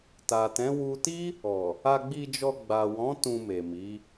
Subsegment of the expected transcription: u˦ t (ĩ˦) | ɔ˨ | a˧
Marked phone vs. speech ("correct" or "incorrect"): incorrect